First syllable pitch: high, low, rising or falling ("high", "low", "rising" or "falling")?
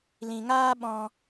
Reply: low